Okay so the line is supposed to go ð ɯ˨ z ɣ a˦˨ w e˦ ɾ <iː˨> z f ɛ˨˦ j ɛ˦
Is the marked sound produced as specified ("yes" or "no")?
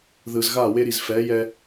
no